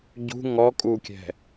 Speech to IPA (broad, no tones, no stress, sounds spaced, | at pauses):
ɟ ṳ ŋ ɔ kʼ u kʲ ɛ̤